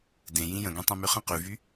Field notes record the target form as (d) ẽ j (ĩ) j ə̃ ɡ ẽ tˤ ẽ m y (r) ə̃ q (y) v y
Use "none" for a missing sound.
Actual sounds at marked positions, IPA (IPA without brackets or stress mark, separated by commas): d, ĩ, χ, y